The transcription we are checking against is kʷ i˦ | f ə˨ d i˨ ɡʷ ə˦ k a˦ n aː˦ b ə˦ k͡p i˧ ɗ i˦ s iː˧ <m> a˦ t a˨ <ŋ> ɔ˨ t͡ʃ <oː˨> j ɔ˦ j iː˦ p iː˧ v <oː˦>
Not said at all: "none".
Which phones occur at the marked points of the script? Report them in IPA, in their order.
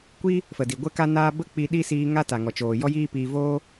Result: ŋ, ŋ, oː˨, oː˦

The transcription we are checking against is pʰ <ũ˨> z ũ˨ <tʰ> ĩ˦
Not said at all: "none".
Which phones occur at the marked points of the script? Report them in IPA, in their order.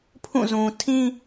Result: ũ˦˨, tʰ

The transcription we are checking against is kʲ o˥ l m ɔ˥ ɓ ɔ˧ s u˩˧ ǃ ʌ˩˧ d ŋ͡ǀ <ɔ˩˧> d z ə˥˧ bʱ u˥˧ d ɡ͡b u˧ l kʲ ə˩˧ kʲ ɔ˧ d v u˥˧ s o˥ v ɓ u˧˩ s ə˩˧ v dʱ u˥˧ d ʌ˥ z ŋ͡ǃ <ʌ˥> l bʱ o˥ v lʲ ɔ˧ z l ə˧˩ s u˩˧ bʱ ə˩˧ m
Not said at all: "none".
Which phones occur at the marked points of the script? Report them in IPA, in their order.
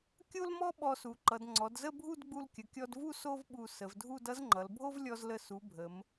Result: ɔ˩˧, ʌ˩˧

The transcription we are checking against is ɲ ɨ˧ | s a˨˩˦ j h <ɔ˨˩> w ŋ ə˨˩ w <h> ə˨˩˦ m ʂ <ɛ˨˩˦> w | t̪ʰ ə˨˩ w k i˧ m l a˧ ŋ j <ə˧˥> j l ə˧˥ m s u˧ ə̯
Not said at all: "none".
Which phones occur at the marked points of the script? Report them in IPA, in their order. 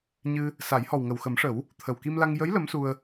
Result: ɔ˨˩, x, ə˨˩˦, ə˧˥

